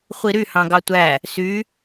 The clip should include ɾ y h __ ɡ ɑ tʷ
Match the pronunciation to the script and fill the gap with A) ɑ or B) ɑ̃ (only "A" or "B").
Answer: B